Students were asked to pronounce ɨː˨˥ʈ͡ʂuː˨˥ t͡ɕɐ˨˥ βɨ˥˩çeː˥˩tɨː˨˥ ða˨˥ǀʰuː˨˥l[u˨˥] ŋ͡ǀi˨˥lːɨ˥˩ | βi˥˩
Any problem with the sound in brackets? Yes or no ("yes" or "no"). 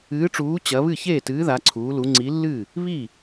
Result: no